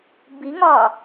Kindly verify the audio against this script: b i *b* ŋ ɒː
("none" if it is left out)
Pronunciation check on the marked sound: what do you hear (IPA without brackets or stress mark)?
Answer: none